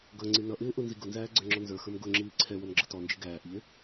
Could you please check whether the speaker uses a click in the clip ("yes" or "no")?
yes